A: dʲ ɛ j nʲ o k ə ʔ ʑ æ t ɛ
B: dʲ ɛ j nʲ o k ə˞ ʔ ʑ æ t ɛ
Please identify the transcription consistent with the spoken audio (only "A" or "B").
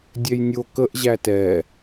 A